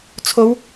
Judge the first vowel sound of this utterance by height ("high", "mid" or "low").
mid